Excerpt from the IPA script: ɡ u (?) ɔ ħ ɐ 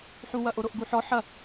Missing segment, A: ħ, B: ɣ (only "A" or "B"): A